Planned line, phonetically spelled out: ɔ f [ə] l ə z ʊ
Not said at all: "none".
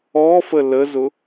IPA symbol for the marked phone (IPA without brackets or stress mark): ə